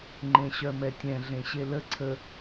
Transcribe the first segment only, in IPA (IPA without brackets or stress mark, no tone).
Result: ŋ͡ǃ